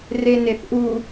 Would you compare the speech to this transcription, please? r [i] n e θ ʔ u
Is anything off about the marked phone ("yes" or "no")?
yes